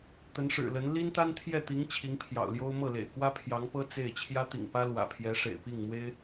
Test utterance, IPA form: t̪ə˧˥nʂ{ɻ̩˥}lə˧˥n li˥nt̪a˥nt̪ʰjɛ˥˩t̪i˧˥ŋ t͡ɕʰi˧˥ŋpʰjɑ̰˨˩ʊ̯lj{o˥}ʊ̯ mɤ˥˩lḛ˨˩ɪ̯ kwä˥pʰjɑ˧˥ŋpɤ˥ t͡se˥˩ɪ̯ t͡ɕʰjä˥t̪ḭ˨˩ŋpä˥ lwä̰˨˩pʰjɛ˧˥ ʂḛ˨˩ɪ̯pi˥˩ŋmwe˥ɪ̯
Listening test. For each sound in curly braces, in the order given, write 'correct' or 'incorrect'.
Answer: incorrect: ɻ̩˨˩, correct

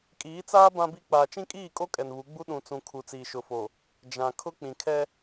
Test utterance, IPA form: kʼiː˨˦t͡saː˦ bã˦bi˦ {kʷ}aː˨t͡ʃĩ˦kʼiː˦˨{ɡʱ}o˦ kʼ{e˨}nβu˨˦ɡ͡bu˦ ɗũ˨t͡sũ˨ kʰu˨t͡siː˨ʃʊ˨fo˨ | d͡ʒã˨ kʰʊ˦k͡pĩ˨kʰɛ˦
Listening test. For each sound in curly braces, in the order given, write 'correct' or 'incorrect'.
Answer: incorrect: k͡p, incorrect: kʼ, incorrect: ɛ˨

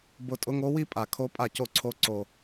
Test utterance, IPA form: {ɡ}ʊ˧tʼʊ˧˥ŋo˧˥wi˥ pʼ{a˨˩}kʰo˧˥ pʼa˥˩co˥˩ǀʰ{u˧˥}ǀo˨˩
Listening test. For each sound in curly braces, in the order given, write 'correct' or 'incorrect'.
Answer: incorrect: b, correct, incorrect: o˧˥

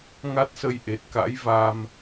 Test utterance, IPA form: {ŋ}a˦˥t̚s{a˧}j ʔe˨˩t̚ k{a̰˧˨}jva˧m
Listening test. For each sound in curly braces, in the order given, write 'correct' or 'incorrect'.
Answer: correct, incorrect: ə˧, incorrect: a̰˧˥

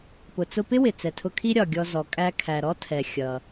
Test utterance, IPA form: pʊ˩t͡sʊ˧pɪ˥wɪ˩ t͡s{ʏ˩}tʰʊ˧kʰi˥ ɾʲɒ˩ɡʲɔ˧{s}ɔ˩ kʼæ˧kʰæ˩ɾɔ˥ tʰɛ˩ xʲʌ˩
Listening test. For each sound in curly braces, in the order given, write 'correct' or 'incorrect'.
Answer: incorrect: ɛ˩, incorrect: z

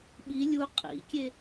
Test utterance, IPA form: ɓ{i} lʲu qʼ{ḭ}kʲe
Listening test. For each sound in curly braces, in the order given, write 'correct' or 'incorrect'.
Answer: correct, correct

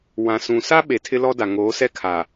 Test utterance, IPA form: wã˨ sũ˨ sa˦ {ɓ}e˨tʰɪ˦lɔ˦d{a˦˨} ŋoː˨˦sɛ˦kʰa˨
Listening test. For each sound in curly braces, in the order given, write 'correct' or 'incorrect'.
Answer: correct, incorrect: a˨

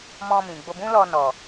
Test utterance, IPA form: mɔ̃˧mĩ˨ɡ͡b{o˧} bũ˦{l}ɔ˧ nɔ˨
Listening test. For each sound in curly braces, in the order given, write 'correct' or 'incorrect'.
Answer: correct, correct

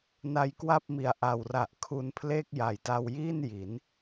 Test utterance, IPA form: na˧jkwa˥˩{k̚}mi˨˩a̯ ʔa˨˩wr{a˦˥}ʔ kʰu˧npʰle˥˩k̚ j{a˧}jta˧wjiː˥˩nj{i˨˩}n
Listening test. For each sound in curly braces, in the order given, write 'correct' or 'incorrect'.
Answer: incorrect: p̚, incorrect: a˨˩, incorrect: a˨˩, incorrect: i˩˦

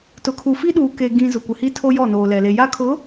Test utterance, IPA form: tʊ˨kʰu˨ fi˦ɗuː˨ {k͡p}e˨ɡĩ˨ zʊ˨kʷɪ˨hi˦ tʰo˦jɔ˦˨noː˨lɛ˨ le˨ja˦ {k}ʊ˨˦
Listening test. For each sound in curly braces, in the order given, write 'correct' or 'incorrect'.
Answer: incorrect: k, incorrect: kʰ

